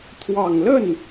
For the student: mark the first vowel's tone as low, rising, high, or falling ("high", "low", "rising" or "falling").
low